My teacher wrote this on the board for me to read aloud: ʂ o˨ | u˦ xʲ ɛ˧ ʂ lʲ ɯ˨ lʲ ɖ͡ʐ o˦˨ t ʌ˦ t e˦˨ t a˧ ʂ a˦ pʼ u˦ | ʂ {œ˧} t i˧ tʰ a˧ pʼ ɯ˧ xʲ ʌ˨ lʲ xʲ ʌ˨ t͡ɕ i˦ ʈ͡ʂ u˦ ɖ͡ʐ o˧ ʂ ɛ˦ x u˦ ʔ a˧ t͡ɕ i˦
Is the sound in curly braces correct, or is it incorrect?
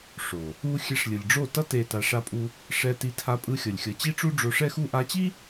incorrect